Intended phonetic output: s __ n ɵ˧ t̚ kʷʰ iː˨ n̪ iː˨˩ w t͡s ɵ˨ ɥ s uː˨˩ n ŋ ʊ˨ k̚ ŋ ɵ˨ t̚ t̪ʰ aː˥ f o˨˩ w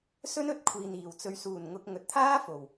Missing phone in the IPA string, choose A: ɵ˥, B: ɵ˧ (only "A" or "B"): A